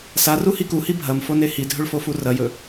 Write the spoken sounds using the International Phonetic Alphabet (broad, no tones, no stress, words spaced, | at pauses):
saruhi kuhi bʱɐmfone hidʱɵɭfofu rɐjɵ